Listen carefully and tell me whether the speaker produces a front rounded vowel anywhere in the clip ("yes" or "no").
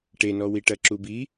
no